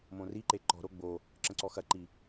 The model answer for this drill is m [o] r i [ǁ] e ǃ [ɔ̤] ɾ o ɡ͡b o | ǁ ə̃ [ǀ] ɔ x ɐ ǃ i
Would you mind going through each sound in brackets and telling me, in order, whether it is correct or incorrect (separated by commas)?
incorrect, incorrect, correct, correct